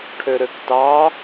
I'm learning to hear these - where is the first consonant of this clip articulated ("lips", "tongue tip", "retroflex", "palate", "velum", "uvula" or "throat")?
retroflex